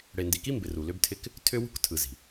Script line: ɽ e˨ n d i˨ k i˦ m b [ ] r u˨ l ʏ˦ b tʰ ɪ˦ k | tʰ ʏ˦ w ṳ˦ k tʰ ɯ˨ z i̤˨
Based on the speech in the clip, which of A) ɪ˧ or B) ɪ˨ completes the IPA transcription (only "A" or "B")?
B